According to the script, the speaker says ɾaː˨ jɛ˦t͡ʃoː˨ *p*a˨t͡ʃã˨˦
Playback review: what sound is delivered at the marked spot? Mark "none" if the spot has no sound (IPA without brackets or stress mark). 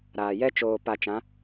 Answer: p